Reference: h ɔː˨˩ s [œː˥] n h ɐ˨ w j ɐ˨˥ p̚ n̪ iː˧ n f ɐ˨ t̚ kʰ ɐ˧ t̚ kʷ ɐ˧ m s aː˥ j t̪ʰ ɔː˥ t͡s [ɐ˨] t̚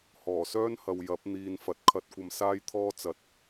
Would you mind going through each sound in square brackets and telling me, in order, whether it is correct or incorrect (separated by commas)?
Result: correct, correct